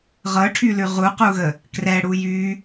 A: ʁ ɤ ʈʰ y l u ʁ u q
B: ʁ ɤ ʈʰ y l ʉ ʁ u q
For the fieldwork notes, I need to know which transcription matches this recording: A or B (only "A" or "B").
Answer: B